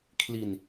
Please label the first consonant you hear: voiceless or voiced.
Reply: voiceless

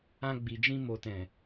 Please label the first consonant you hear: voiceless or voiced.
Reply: voiced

